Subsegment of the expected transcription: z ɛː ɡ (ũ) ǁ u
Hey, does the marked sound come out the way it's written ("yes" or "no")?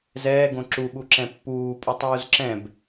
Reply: no